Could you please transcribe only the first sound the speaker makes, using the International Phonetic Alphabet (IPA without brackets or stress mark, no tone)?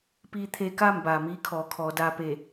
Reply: p